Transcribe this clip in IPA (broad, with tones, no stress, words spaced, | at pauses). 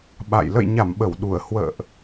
ɓa̰˧˨j lə̰˧˨jɲa˧˩mɓə˧˩w ɗu˧˩ə̯ hwə̰ː˧˨ʔ